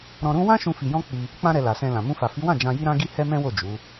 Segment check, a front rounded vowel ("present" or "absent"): absent